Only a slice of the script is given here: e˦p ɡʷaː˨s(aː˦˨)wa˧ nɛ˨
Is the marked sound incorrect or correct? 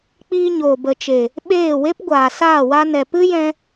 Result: correct